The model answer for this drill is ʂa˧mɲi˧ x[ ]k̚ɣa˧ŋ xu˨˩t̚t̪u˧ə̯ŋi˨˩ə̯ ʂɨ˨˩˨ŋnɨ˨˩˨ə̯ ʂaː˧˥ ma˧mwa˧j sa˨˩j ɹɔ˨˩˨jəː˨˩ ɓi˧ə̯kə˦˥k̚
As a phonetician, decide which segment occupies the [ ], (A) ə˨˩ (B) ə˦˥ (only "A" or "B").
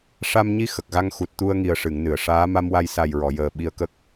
A